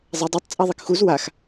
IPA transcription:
zˤ ɛ dˤ ɯ tˤ t͡sʼ a ðˤ i k x u z w a x

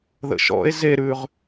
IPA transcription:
ð ə̰ ʃ ɔ̰ e̯ z e ɾ ʉ ʁ

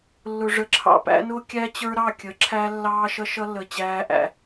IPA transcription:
lː ʊ˨ ʐ ə˨˦ ǁʰ ɑ̰˨ p æ̰˦ n ʊː˦ kʲ æ˦ t͡ɕ ə˞˦ ɾ ɑ˦˨ kʲ ə˨˦ ǁʰ æ˦ lː ɑː˦ ʃ ʌ˦ ʃ ʌ˦ lː ə˨ t͡ɕ æː˦ ʔ æ̰˦

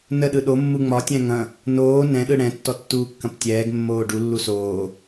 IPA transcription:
n ə ɗ ɯ ɗ o mː u ŋ͡m ɒ tʲ ɛ̃ ŋ ɐ̃ | n oː n ɛ̃ ɗ ɯ ɽ ɛ̃ tː ɔ tː uː kː ɐ̃ p tʲ ɛː ɡ mː oː ɖ u lː u s oː

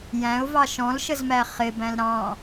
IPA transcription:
j æ̃ ʊ̯ v ɑ ʃ ɔ̃ l ʃ ə z m æ χ ɪ b æ̃ l ɾ ɑ̃

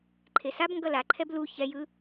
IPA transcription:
ǃʰ e s a b ŋ ɡ ʌ l a ǃʰ ɛ b l u ç ɛ j ɯ

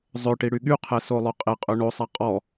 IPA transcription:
zˤ ø ʈ i ɽ y ɠ y qʰ ɛ s o lˠ ø qʼ e qʼ ø ɳ o sˤ a qʼ ɔ

